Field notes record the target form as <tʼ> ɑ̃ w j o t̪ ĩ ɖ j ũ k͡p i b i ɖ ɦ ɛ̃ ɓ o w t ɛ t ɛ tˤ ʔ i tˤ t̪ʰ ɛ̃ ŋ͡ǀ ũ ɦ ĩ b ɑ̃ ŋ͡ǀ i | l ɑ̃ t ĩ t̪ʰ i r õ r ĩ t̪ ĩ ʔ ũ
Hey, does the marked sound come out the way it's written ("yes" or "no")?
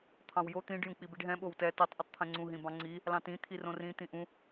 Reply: no